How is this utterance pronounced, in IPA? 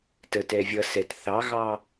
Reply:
t ə t ɛ vʲ ʌ s ɛ t θ ɑ ɣ ɑ

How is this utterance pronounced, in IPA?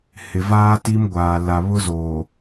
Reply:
h ɪ˨ v aː˦ t i˦ m ɡʷ aː˨ l a˨ β ʊ˦ z oː˨

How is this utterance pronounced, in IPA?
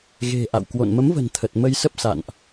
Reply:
ɣ e̤˨˩ ʔ a̰˧˨ w k w o̰˧˨ n m ə˨˦ m v ə̤˨˩ n t̪ʰ ə˨˩ t̚ m ə˧ j s ə˦˥ p̚ s a̰˧˨ n ʔ

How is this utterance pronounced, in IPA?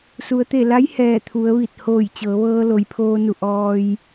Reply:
s u˩ ə̯ t̪ e˧˩ l a˧˥ j h ɛː˧˩ t̪ʰ u˩˧ ə̯ ʋ i˧˩ t̚ h oː˧˩ j t͡ɕ ɤː˩˧ ʋ ɤː˧ l o˩ j pʰ oː˧ n u˧˩ ʔ ɔː˧ j

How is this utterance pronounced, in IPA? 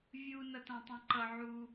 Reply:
vʲ u n ʌ t ã tˤ ɛ̃ ǃ ʌ ʕ u

